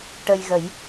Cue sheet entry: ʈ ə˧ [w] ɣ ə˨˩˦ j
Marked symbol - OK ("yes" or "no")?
no